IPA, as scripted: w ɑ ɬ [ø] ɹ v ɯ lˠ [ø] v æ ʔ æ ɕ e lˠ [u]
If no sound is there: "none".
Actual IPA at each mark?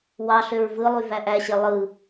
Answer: ø, y, ɯ

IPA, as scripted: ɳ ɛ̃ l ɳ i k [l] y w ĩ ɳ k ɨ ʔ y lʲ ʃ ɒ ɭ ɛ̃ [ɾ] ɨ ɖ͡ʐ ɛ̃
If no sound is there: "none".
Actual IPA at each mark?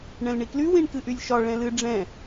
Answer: l, l

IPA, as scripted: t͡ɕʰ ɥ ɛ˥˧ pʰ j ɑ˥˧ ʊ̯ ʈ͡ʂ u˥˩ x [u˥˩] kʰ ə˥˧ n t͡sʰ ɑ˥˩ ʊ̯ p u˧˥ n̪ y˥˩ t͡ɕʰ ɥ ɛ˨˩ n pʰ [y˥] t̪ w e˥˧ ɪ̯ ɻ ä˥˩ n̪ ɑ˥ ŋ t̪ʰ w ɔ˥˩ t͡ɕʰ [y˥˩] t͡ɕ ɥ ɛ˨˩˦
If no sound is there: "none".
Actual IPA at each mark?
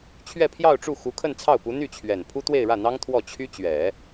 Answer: u˧˥, u˥, y˥

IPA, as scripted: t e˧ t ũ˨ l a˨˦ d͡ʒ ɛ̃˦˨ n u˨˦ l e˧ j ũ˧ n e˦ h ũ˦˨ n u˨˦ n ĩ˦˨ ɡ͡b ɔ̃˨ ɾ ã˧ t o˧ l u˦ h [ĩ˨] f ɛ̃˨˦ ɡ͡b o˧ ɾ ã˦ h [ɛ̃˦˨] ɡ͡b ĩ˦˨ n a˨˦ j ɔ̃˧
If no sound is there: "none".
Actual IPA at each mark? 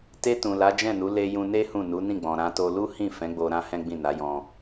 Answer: ĩ˦˨, ɛ̃˦

